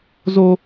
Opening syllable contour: high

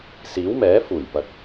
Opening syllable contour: rising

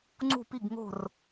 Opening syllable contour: falling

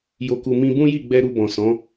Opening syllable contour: low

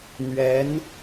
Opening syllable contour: rising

